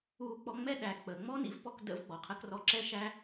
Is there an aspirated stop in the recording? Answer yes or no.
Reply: yes